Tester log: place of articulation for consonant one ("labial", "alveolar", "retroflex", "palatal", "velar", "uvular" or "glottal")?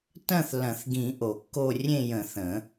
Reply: alveolar